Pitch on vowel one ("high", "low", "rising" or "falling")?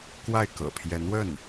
falling